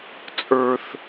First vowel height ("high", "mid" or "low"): mid